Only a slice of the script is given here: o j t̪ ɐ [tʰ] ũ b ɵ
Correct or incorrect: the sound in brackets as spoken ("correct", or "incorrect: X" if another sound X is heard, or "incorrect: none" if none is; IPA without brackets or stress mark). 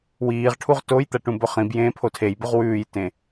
incorrect: ʈ